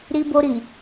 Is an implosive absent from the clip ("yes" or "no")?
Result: yes